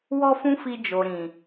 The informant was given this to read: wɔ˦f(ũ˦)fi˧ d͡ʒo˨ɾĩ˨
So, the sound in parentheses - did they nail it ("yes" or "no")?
yes